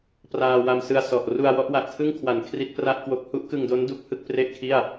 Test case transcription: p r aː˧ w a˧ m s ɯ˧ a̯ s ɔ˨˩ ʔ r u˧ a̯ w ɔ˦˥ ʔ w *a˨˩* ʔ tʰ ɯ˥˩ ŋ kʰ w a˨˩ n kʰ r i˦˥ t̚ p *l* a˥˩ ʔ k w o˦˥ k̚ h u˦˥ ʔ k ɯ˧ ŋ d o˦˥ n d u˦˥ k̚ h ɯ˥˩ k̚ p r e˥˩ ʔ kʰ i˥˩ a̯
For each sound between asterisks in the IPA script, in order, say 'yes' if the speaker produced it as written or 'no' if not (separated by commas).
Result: yes, no